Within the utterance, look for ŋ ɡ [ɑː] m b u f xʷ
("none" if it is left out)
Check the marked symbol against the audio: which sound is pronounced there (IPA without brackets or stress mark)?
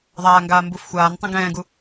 aː